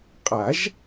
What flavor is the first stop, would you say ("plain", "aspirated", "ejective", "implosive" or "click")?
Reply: ejective